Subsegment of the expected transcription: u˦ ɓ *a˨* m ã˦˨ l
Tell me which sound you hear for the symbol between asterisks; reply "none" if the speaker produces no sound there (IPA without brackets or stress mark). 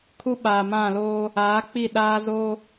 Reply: aː˨